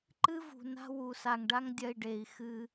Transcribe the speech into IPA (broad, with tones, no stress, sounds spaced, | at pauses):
ǃ ɨ˦ v ṳ˨ n a̤˦ w u˨ s a˨ ŋ ɖ a˦ ŋ dʲ ɐ˧ i̯ ɖ e˨ i̯ x ɨ˧